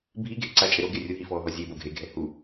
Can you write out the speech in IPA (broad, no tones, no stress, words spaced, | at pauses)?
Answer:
bʱi ɡʱeǀa t͡ʃʼɘɾo ɡerʲu ɦifɔːɦɔzʲe boɡʱe ɡʱɛhu